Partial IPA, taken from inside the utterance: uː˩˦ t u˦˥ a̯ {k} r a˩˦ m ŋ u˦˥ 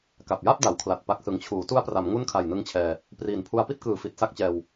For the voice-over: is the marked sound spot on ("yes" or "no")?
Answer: no